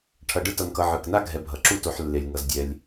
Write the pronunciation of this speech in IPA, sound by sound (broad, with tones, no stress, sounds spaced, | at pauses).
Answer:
ʈʰ ʌ˨ ɖ ɯ˥ t ʌ˨ n k ʌ˨ ʕ ɯ˩ k n a˥ ɡʱ ɛ˨ bʱ ʌ˩ ǁ u˥ t o˨ ħ lː e˩ lʲ ŋ ʌ˩ z dʲ ɛ˩ lʲ